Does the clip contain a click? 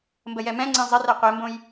yes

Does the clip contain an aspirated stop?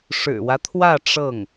yes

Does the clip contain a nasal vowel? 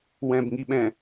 yes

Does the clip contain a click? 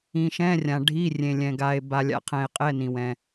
no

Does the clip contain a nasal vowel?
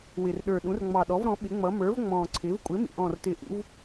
yes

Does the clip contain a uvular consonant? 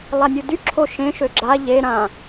no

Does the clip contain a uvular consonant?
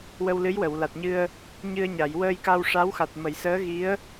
no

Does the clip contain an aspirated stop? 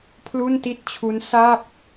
yes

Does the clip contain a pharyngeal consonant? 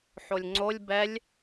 yes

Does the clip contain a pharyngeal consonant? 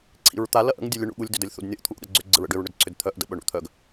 no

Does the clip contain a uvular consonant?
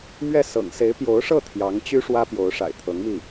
no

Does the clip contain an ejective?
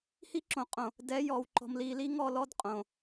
yes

